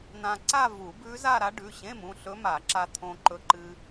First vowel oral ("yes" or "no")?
no